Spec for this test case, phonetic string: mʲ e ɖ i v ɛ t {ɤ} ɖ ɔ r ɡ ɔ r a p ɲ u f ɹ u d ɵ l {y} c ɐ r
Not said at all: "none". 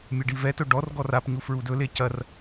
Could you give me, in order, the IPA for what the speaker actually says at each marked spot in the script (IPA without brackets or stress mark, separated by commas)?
ɵ, e